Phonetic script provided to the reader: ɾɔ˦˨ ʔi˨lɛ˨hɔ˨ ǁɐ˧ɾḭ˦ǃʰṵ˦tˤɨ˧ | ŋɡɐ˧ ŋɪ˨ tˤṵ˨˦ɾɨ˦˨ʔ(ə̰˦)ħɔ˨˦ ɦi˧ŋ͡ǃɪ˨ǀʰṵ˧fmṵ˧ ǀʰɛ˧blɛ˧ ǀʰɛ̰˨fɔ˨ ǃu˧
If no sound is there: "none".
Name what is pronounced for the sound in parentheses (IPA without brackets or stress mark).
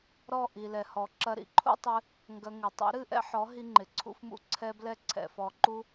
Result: ɛ̰˦